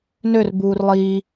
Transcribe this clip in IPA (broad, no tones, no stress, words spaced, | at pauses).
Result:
nør buːrlˠiː